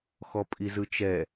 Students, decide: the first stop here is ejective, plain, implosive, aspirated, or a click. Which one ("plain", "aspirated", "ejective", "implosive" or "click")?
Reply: ejective